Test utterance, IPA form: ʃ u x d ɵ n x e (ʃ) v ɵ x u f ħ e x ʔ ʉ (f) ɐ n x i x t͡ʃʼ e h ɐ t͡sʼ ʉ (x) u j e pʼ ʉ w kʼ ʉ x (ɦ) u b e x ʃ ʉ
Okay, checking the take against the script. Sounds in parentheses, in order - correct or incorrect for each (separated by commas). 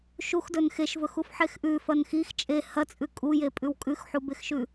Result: correct, correct, incorrect, incorrect